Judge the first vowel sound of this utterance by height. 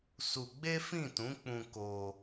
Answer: high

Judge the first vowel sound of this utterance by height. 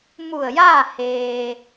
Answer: high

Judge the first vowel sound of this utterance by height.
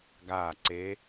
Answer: low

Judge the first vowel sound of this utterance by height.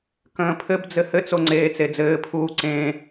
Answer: mid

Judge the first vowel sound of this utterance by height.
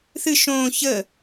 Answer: high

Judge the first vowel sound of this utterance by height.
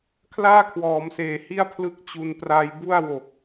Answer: low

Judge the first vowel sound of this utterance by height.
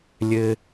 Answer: mid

